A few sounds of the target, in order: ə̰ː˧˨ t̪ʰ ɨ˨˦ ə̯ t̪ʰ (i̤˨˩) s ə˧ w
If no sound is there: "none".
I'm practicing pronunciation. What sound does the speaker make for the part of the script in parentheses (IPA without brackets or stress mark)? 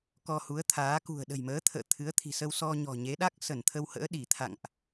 i̤˨˩